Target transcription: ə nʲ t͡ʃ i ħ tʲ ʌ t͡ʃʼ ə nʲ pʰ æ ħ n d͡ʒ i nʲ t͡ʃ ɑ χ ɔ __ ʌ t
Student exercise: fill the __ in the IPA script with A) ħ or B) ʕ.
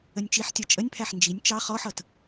A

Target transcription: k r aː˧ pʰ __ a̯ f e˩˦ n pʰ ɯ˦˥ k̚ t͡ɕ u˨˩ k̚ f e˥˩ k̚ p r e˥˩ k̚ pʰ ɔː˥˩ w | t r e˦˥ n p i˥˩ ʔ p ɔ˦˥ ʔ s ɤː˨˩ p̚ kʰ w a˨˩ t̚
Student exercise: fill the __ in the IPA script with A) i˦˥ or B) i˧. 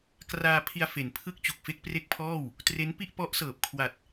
B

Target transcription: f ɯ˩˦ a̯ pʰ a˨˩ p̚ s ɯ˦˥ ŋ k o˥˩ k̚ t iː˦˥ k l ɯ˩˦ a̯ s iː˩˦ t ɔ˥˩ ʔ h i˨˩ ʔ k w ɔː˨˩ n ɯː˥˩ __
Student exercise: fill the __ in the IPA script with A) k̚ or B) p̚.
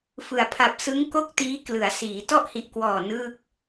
A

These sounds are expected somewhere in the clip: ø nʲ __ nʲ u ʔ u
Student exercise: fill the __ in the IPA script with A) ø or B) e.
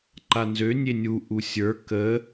B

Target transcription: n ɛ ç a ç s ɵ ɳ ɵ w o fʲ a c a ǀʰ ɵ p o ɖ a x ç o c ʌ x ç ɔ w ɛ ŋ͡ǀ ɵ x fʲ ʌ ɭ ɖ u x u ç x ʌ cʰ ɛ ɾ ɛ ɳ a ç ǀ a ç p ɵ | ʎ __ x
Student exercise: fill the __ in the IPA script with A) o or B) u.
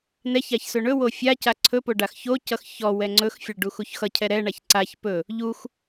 B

